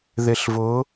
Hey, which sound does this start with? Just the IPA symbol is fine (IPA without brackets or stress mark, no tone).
ð